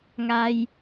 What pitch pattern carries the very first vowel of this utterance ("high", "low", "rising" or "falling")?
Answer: high